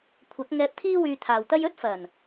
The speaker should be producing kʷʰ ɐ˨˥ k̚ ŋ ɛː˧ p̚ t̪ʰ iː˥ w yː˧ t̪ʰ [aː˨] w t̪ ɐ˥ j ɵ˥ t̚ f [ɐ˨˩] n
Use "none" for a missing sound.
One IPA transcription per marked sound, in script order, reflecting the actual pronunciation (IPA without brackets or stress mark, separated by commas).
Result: aː˨, ɐ˨˩